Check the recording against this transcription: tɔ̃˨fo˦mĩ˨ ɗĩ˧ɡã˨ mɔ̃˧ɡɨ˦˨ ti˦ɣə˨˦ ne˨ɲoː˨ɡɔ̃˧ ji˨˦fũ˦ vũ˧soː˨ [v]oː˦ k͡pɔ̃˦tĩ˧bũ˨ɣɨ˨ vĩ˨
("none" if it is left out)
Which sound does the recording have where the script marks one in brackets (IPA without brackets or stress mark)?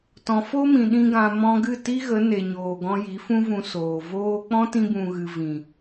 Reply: v